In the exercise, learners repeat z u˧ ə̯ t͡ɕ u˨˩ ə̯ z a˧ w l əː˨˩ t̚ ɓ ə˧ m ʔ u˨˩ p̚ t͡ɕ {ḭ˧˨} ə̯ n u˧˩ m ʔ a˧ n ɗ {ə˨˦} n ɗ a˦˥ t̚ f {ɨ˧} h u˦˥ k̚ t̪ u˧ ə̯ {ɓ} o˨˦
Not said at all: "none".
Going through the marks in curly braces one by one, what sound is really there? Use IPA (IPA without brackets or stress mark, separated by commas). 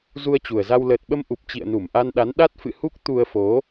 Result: ḭ˧˨, a˨˦, ɨ̰˧˨, f